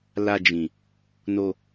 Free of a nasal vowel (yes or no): no